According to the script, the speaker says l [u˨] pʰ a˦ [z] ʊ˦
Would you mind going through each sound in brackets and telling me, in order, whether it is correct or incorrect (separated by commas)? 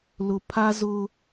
incorrect, correct